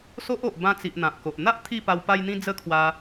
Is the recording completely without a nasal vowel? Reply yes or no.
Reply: no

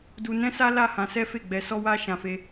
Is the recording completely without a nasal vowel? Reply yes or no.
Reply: no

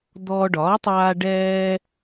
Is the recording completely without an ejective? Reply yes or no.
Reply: yes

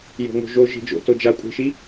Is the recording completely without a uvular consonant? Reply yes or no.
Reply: yes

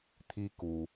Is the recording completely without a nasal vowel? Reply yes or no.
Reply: yes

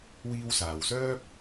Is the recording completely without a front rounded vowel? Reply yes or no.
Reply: no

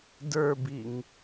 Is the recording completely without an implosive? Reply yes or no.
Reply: yes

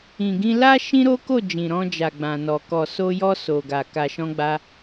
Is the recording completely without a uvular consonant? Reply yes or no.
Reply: yes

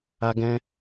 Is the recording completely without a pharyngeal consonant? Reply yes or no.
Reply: yes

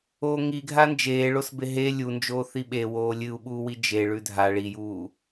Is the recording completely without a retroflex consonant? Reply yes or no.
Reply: no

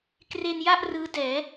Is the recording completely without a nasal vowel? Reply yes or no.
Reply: yes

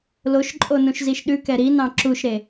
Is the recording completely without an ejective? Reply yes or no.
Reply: no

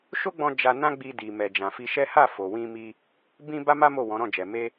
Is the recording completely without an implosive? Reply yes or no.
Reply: yes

